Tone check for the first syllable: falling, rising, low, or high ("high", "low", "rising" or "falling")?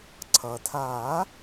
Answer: low